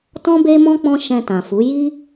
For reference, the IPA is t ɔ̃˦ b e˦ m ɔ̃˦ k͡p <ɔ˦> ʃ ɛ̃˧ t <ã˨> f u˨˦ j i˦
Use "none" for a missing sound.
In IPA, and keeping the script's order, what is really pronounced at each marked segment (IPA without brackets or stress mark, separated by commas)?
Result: ɔ̃˦, ã˨